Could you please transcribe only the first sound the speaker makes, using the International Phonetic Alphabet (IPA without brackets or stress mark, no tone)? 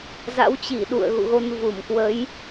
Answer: z